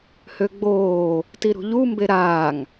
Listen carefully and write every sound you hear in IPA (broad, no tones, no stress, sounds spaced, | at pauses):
h ø ɡ͡b oː | t i ɾ ṳ ʎ u m b e ɾ aː ŋ